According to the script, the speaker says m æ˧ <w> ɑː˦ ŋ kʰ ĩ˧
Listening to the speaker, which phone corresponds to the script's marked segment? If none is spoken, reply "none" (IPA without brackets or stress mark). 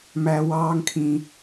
w